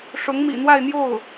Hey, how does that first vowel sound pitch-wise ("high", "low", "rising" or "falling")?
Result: rising